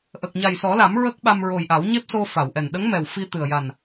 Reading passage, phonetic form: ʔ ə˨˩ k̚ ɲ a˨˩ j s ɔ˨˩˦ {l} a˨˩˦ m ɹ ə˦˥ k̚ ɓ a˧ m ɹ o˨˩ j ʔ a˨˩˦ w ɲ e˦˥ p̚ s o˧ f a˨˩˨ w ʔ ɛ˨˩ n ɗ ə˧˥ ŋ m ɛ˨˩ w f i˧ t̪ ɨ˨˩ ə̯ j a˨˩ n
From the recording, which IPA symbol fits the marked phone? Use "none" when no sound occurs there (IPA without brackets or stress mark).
l